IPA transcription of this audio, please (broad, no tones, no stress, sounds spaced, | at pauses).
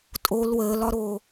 tʼ o l w əː l ɒ ɾ oː